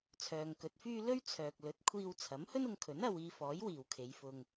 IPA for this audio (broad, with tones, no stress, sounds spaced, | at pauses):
t͡sʰ œː˨ ŋ k ɵ˨˥ t̚ f yː˥ l ɵ˥ ɥ t͡sʰ œː˨ k̚ l ɵ˨˥ t̚ kʷʰ iː˧ w t͡sʰ ɐ˨˥ m h ɵ˥ n ʊ˧ ŋ kʰ ɵ˨˥ n ɐ˧ w iː˧ f ɔː˨˥ j w iː˨ w kʰ e˨˧ j f ʊ˧ ŋ